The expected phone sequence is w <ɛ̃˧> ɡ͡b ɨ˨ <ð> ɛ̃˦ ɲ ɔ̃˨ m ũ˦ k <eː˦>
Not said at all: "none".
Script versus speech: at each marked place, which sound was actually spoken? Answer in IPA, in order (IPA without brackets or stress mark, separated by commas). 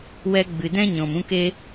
ɛ˧, d, e˦